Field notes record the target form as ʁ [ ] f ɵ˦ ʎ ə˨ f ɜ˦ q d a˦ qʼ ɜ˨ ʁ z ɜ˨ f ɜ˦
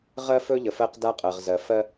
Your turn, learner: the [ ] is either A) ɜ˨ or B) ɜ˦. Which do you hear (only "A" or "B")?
B